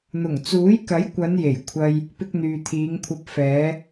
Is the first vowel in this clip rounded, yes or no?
yes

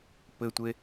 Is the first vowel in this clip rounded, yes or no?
no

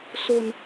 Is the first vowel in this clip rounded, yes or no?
yes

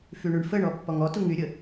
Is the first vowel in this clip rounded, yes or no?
yes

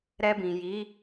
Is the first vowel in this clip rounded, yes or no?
no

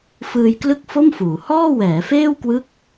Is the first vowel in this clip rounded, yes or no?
no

